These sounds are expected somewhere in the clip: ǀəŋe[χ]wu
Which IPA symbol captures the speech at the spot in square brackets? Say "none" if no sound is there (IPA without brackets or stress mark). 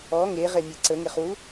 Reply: χ